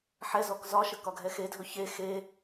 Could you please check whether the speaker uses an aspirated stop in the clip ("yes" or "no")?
no